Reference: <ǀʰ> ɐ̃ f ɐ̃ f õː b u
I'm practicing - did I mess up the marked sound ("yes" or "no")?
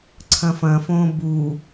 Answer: no